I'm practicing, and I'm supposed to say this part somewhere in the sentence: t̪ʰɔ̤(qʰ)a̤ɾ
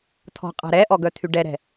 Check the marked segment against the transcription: incorrect: qʼ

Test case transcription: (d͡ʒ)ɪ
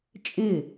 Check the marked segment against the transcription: incorrect: t͡ʃʼ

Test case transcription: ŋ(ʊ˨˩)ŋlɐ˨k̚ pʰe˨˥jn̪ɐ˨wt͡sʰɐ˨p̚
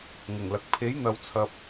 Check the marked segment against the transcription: correct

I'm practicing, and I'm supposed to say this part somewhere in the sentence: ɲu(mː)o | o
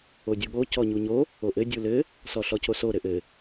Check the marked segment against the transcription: incorrect: ɲ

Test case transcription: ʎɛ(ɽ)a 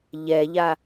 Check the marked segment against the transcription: incorrect: ʎ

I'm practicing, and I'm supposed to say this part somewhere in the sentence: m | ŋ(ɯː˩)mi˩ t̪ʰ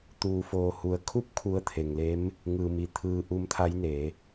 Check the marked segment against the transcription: correct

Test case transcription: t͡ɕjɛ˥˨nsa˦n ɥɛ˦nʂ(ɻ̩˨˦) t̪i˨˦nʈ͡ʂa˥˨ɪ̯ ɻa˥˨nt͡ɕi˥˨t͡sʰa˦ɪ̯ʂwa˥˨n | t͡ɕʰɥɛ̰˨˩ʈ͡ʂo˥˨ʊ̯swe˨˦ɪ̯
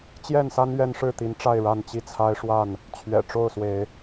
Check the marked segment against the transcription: incorrect: ɻ̩˥˨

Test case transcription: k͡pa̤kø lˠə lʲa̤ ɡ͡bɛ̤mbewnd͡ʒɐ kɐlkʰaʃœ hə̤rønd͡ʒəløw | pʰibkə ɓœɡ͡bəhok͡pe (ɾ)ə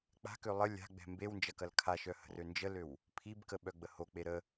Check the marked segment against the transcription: correct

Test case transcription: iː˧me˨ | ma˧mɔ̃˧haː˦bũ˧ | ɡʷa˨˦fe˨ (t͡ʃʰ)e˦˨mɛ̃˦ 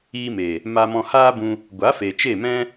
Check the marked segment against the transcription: incorrect: t͡ʃ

